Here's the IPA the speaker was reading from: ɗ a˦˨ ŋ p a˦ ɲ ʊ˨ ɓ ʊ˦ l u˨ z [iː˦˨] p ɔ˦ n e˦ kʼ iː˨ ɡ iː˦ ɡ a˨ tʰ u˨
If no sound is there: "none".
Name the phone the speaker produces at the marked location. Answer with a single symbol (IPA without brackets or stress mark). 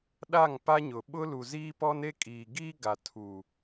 iː˦